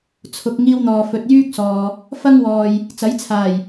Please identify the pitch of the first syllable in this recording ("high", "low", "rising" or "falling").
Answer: low